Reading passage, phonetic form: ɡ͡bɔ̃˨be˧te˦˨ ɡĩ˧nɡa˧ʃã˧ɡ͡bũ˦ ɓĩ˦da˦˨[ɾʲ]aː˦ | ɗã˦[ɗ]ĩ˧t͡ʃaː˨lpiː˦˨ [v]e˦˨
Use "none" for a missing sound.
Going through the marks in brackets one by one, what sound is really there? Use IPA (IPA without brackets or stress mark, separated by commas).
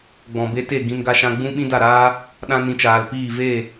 ɾ, n, v